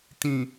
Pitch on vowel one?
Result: low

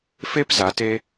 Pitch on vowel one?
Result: high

